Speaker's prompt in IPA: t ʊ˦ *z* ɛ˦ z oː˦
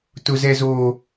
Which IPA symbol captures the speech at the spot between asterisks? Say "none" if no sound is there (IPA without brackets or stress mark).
z